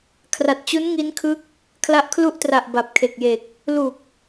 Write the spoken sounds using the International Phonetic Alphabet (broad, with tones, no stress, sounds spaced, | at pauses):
kʰ r a˨˩ t̚ t͡ɕ u˦˥ n ŋ i˦˥ n kʰ ɯ˦˥ k̚ | kʰ l a˦˥ ʔ kʰ l u˥˩ ʔ t r a˨˩ ʔ b a˨˩ p̚ kʰ e˨˩ k̚ j e˨˩ k̚ | l u˨˩ k̚